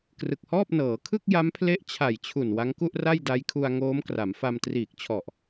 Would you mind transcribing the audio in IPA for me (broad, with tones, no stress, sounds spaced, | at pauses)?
k r ɯ˨˩ k̚ h ɔː˥˩ p̚ n ɤː˩˦ kʰ ɯ˥˩ k̚ j a˦˥ m pʰ l e˦˥ ʔ t͡ɕʰ a˨˩ j t͡ɕʰ u˨˩ n w a˦˥ ŋ k u˥˩ ʔ r a˥˩ j d a˦˥ j kʰ u˧ a̯ ŋ oː˦˥ m k r a˩˦ m f a˧ m t r iː˨˩ k̚ t͡ɕʰ ɔ˨˩ ʔ